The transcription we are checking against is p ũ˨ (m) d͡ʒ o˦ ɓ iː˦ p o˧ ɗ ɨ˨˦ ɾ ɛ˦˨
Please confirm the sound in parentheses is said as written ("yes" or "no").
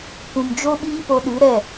yes